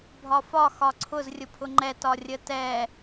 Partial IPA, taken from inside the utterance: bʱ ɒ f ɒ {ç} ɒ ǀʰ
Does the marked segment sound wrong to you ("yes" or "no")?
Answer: yes